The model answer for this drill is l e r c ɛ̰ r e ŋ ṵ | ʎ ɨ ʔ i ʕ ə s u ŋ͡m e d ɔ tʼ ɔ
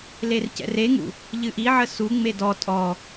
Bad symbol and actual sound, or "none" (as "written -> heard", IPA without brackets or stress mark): none